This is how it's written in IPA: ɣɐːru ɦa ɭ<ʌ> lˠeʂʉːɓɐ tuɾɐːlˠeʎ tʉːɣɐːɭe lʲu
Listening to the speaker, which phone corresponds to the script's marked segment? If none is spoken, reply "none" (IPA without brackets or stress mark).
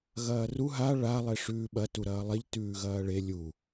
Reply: a